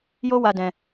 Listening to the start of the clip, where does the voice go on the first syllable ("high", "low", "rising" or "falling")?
high